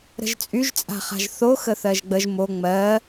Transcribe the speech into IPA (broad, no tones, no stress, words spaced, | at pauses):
ɾə̤ʒt͡sʼyʒt͡sʼa̤χa̤ʒ θo xəθɜʒɡ͡bəʒ mo ŋ͡mɜ